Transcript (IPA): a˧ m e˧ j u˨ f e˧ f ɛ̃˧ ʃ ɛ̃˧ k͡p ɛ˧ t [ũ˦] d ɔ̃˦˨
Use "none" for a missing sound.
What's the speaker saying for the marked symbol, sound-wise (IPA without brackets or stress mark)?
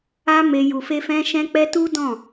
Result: u˦